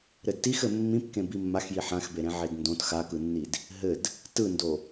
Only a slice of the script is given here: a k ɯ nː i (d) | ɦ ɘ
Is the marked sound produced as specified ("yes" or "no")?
yes